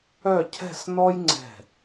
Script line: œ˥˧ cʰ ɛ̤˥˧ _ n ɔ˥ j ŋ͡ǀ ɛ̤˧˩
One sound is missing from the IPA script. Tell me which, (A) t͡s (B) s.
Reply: B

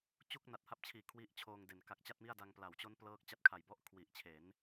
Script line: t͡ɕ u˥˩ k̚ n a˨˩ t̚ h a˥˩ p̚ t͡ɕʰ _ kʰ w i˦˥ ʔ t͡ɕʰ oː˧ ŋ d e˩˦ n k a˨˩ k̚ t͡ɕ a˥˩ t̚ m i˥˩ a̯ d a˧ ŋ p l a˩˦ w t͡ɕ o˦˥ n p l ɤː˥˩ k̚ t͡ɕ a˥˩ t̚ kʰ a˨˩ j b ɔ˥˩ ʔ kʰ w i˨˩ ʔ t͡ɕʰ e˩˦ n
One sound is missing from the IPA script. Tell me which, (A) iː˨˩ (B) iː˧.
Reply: A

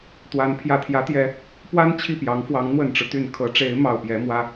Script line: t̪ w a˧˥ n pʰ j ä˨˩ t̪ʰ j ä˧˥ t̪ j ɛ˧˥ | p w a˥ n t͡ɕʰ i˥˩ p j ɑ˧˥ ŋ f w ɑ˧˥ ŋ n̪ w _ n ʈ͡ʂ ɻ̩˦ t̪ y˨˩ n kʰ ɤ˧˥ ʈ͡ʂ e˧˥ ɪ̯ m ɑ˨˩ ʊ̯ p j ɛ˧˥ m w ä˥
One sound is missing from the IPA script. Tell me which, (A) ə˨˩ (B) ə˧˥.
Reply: A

